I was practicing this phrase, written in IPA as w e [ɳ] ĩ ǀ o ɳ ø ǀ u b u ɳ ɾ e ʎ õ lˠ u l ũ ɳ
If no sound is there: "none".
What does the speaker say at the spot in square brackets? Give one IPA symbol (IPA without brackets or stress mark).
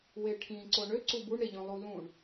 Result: ʈʰ